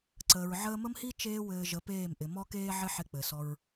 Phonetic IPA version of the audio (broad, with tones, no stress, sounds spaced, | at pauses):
ǀ əː˨ ɹ ʕ əː˧ m ə˦ m h i˦ t͡ʃ eː˦ w ɘː˧ ʒ ə˨˦ p eː˦˨ m ʔ ɪ˨ m ɔ˧ k eː˧ ʕ ɪ˦ ħ ɪ˧ k͡p ɘ˨ s ɔ˧ ɹ